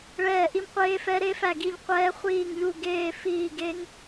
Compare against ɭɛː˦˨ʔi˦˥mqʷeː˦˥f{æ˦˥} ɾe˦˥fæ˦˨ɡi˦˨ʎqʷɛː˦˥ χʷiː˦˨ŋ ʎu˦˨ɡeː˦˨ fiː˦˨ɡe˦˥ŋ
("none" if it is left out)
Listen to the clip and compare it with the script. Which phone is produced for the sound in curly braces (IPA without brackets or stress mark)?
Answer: ɛ˦˥